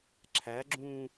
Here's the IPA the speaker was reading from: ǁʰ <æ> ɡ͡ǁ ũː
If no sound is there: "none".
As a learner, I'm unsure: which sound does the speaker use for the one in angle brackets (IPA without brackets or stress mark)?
æ